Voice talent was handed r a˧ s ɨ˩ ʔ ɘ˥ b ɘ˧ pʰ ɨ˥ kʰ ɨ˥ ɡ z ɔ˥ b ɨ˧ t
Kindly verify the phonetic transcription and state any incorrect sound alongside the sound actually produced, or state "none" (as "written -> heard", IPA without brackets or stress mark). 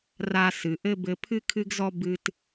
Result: none